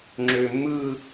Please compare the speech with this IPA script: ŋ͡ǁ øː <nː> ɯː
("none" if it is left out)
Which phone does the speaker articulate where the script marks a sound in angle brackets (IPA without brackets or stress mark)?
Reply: mː